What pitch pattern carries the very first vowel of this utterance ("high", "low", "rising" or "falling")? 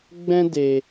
high